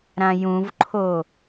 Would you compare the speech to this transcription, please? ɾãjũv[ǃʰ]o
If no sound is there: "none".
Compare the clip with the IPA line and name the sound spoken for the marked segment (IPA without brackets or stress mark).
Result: ǃʰ